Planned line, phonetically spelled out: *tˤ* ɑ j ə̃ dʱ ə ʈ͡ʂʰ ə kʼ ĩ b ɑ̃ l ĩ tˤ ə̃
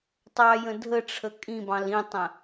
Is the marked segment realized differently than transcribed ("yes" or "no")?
no